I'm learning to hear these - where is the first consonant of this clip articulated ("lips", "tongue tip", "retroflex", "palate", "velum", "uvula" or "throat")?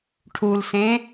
retroflex